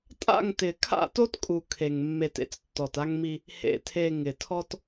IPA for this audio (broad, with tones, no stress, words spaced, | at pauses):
tʼa̰˦˨ŋtɪ˨ kʰa̰˦˨to˦tkʼu˨ kʰe˨ŋ mːe˨tḛ˦t͡s tːɔ˨ta˦ŋmi˦ | hḛ˨tʰe˨ ŋɪ˨tʰɔ˦t